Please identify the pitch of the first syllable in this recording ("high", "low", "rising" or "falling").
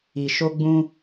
low